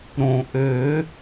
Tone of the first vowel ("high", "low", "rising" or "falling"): low